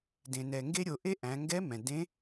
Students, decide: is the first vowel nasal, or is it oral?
nasal